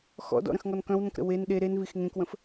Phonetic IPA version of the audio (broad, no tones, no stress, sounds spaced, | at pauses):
x ɔ̰ d ɔ̰ ɾ ə̃ x ŋ ɔ n k œ̃ w n ə̃ k ɾ ə̰ w e n ɗ e ɾ e n v i x ŋ ẽ k w ə̃ f